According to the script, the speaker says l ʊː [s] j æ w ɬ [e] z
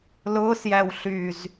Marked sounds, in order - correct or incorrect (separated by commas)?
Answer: correct, incorrect